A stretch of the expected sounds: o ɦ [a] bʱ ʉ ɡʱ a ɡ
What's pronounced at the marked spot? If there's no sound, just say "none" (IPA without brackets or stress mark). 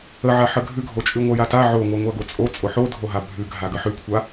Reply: a